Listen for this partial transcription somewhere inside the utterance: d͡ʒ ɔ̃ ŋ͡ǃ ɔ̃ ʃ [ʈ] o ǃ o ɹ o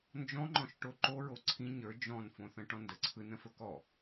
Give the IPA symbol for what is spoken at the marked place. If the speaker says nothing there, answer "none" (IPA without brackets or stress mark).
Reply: ʈ